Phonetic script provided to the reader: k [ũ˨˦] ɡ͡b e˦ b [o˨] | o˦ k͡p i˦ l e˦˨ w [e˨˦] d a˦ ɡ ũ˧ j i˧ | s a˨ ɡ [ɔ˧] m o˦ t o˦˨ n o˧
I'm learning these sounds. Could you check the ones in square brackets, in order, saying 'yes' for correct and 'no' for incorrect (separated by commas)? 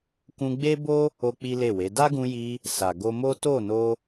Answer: no, no, yes, no